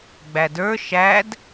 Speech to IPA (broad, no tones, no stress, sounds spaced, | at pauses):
ɡ͡b æ d ə˞ ʃ æ d